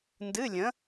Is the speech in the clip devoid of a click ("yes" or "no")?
yes